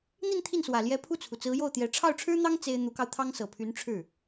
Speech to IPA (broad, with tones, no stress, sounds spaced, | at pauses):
n̪ i˥˧ n t̪ʰ i˥˩ n s w ä˨˩ l j ɛ˧˥ pʰ u˥˩ t͡sʰ u˩ t͡s ɹ̩˧˥ j o˥˩ ʊ̯ t̪ j ɛ˧˥ ʈ͡ʂʰ ɑ˥˩ ʊ̯ ʈ͡ʂʰ ɻ̩˥ n̪ ɑ˥ ŋ t͡s e˥ ɪ̯ n̪ u˧˥ k ɑ˧ ʊ̯ t̪ʰ ɑ˥ ŋ s ɤ˨˩ pʰ y˧˥ n ʈ͡ʂʰ ɻ̩˥˩